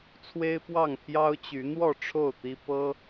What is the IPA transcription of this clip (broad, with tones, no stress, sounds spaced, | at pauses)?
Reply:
t͡sʰ w e˦ ɪ̯ p w ɑ˥˨ ŋ pʰ j ɑ˦ ʊ̯ t͡ɕ y˨˦ n̪ w ɔ˥˨ ʈ͡ʂʰ o˥˨ ʊ̯ t̪ i˦ p ɤ˦